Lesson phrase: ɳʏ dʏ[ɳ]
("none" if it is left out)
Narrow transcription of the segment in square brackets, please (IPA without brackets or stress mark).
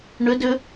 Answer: none